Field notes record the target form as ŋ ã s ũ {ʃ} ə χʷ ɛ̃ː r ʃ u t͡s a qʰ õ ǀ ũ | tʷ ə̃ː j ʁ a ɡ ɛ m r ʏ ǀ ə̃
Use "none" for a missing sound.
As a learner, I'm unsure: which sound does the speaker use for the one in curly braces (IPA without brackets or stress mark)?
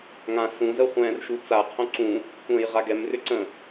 z